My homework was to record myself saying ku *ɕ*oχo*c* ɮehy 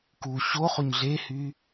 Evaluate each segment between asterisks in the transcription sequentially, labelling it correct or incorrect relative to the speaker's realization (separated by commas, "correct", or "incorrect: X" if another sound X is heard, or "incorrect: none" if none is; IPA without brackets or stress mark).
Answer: correct, incorrect: ɲ